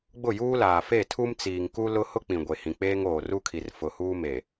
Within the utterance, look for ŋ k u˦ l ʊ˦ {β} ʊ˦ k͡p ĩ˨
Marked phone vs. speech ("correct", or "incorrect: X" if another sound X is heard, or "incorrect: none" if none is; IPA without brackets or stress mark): incorrect: h